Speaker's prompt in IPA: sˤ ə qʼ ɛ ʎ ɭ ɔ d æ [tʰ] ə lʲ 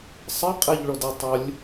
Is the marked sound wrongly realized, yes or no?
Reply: yes